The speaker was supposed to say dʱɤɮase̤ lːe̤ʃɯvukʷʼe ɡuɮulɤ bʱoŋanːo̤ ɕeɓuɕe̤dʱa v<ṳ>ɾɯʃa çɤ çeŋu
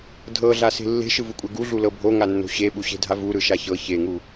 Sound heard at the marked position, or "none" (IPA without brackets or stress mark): u